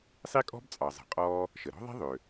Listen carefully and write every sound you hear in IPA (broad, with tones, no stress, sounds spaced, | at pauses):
sˤ i˥ kʼ ɔ̤˥ b t͡sʼ ɑ˩ zˤ ə̤˩ qʼ ɔː˥ | ʃ ə˩ ɾ ɔ̤˥ ðˤ i̤˥ ðˤ ø˩